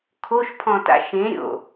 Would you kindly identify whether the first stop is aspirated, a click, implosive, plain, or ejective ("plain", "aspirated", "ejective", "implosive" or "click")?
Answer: aspirated